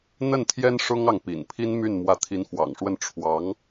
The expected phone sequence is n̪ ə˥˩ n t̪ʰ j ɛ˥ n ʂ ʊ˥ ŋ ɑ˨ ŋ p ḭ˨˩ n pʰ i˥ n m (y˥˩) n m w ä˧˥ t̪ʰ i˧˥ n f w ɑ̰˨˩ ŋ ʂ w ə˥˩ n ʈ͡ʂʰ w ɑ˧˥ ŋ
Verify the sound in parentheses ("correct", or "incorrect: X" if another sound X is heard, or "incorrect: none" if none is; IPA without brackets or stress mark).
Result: correct